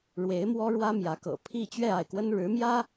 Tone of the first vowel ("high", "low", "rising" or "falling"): rising